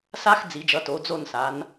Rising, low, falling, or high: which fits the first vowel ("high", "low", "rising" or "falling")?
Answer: high